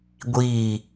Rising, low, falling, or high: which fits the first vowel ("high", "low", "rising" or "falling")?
falling